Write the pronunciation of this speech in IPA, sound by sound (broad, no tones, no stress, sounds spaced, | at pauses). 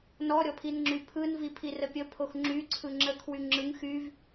n ɔ ɾʲ ɔ pʰ i n ŋ͡ǁ y pʰ ɯ n v i pʰ i r ə pʲ ə pʰ o x ŋ͡ǁ y ǀʰ ɯ ŋ͡ǁ ə kʰ w y ŋ͡ǁ ɯ ŋ x y v